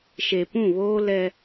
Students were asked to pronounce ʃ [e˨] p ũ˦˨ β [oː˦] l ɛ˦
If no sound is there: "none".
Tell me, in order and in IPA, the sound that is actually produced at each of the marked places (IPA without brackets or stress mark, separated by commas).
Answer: e˨, oː˦